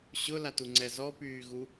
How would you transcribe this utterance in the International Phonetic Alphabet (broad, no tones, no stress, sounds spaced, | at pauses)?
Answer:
ɕ ʊ l a t u ŋ͡ǀ ɛ z ɔ p yː ɣ u